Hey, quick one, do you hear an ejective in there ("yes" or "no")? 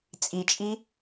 yes